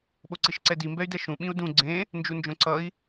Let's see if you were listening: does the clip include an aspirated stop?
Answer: no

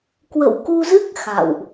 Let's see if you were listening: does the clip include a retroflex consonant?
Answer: no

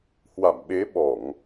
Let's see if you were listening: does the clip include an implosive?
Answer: yes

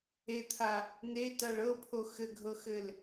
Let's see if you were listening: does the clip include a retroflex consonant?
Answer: yes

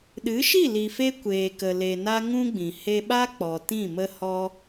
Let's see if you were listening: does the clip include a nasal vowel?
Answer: yes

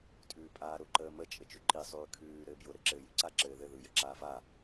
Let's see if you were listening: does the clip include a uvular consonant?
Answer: no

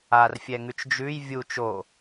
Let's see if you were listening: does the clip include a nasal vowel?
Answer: no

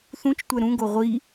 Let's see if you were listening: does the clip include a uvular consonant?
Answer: yes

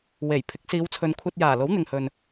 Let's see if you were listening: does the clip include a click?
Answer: no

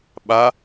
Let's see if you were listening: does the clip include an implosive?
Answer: yes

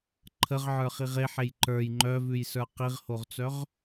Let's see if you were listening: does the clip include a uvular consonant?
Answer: yes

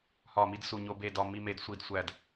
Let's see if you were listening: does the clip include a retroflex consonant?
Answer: no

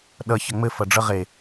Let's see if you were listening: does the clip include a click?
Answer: no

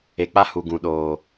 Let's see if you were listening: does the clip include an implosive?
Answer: yes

